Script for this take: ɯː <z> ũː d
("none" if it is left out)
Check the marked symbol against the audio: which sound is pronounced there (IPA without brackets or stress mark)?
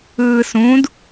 s